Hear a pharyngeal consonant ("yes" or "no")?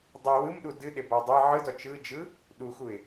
yes